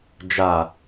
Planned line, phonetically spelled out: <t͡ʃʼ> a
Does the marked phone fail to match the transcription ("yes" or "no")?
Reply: yes